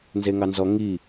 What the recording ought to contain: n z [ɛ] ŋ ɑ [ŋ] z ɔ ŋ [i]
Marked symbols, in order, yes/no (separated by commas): no, no, yes